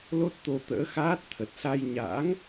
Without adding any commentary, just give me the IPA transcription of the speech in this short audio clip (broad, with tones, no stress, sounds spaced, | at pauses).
l o˦˥ t̚ t̪ o˧ t̪ ə̰ː˧˥ x aː˦˥ t̚ t̪ʰ ə˨˩ t̚ s a˧ j ɲ a̰ː˧˥ ŋ